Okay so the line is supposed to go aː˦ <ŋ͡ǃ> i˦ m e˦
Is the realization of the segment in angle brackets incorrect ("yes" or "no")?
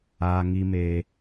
yes